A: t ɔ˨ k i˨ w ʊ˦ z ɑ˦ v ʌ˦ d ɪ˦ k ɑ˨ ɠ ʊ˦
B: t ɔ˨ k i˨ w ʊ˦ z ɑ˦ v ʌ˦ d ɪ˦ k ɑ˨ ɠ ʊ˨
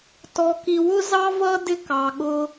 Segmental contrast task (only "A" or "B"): A